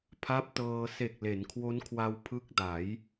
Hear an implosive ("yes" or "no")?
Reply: no